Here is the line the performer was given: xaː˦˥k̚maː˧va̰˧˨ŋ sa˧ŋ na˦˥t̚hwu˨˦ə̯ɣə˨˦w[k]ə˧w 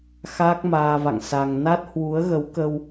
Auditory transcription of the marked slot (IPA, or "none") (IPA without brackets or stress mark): k